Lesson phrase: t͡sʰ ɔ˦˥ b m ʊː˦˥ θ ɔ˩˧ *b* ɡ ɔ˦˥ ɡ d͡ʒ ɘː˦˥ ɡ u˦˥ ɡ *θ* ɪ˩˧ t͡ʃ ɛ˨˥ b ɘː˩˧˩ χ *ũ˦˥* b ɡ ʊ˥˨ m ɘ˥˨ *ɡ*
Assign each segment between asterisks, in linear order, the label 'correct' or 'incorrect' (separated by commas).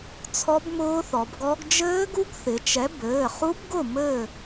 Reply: correct, correct, incorrect, incorrect